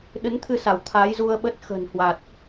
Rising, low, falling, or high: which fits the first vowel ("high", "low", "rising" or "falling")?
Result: rising